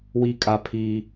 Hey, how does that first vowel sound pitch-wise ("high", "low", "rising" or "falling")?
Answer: high